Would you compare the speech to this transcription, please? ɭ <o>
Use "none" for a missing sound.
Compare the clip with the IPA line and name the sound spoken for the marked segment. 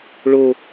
o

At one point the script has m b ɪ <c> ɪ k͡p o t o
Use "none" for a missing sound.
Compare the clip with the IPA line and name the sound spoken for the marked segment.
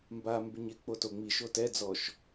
ɲ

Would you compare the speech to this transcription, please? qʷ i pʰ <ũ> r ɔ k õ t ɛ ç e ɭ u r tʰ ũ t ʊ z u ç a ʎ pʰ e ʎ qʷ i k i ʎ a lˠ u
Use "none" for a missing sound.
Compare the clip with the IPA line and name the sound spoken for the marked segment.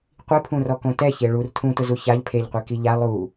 ũ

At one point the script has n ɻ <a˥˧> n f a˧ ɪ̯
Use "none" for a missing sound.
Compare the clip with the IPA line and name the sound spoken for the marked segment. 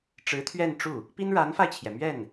a˧˥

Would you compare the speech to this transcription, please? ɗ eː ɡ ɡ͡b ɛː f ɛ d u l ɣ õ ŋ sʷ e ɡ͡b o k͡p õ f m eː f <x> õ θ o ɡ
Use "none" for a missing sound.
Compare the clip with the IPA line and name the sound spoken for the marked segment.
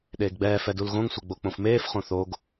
χ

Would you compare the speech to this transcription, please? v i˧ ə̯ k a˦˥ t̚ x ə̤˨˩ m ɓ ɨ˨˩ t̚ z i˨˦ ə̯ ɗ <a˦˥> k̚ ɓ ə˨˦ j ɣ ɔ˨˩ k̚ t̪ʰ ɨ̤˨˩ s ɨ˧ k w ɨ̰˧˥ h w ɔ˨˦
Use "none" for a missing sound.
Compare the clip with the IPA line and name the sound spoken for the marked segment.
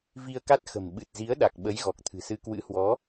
a˨˩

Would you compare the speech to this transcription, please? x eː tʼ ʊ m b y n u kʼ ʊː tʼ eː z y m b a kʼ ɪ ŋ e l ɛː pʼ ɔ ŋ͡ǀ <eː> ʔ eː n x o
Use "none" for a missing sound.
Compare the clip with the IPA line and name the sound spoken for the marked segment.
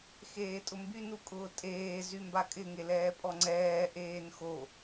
ɛː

